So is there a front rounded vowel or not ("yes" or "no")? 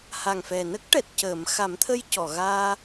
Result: no